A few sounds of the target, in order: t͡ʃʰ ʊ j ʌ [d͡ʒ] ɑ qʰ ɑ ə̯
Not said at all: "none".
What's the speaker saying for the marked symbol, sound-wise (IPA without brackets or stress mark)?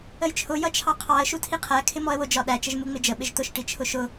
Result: t͡ʃʰ